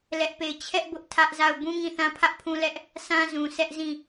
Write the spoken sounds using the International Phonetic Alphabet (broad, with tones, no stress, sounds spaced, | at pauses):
l ɛ˦ ʔ p e˦˨ ɪ̯ t͡ɕʰ ɛ˦ ʔ b ʊ˦ ʔ tʰ ä˦ ʔ z a˦˨ ʊ̯ b ũ˦ ŋ ĩ˦˨ θ ã˦ pʰ ä˦ ʔ pʰ ũ˦ l ɛ˦ ʔ | s ã˦ z ũ˨ sʰ ɛ˦ ʔ z ĩ˦˨